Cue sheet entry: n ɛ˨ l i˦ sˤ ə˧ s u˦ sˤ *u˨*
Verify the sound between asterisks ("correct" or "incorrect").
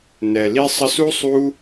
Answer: incorrect